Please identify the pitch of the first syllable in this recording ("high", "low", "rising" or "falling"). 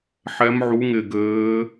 rising